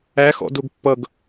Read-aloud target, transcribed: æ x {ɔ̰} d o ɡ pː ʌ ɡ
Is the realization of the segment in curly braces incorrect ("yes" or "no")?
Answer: no